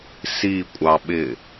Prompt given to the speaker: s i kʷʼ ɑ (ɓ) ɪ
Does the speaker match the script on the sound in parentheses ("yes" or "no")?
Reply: yes